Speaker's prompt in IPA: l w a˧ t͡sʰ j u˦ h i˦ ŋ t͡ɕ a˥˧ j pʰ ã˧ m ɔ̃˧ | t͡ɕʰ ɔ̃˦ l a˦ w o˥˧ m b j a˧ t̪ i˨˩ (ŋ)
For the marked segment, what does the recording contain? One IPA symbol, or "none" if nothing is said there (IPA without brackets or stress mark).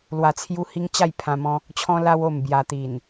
n